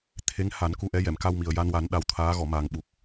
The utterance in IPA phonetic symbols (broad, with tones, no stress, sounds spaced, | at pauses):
t̪ʰ e˧˥ ŋ h a˨˩˦ n k u˧ ʔ ɛ˧˥ j ɛ˨˩˨ m k a˧ w m i˨˩ ə̯ j a˧ n w a˨˩˦ n ɗ a˧˥ w t̪ʰ aː˧˥ ɣ ɔ˨˩˨ m aː˨˩ ŋ ɓ u˨˩ k̚